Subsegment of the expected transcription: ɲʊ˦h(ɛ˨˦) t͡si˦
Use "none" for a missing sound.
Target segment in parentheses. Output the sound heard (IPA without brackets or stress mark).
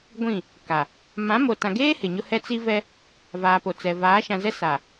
ɛ˦